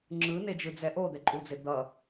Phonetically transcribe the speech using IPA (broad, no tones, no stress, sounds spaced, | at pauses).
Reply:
ŋ͡ǁ ɯ n e d͡ʒ ɯ d͡z ɛ ʔ o d̪ ɛ ǃʼ u d͡z e d̪ ʌ